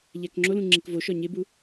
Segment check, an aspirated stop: absent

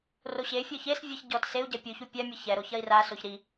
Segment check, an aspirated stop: absent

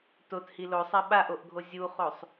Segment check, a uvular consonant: present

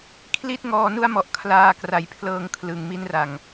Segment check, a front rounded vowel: absent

